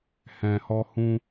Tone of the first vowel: low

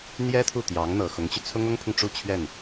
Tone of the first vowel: high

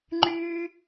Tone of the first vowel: high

